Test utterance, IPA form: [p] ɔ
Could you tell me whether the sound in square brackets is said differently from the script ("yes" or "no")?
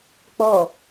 yes